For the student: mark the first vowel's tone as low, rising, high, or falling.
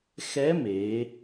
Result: rising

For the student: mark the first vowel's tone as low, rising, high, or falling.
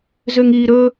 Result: high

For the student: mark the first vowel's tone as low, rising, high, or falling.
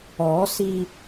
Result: rising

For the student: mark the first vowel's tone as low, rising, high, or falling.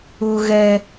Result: high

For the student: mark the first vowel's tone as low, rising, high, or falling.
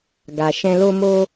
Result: low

